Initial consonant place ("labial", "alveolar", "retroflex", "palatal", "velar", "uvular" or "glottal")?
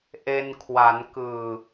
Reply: glottal